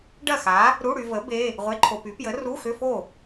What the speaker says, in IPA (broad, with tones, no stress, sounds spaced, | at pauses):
ɖ ɐ˥˨ x a˨˥ | ɾ u˧˥˧ ɽ y˧ v ə˨˥ b e˧˥˧ | ʁʷ e˧˥˧ ǃʰ o˧ p y˨˥ p j ə˨˥ r u˧˥˧ x ʏ˧˥˧ f o˥˨